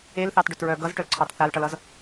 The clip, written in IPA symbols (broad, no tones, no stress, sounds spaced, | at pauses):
e l θ ɑ t ɖ œ t ɹ œ ɡ ʌ z ʈ œ l ǀʰ ɑ t θ a l ʈ ʌ l ʌ z